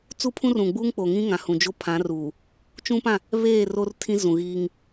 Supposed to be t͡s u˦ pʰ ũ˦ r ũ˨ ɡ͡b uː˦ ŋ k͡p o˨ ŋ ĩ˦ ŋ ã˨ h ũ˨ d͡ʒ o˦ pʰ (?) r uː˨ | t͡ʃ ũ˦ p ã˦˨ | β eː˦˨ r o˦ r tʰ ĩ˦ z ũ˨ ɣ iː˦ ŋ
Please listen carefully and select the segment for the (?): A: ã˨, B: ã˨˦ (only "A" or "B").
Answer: B